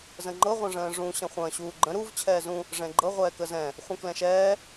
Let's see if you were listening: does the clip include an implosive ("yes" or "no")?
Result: no